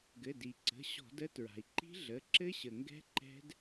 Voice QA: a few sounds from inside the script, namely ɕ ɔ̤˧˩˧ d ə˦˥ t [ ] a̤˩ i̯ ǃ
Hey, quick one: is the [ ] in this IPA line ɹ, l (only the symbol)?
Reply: ɹ